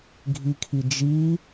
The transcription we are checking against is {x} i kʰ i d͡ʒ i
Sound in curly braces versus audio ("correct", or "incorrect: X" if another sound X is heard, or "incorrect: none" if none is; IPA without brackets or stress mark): incorrect: ɡʱ